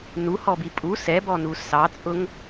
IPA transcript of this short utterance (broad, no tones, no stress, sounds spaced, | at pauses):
n u h ɔ b i pʼ u s ɛ b ɔ n u s ɑ t͡sʼ ʊ ŋ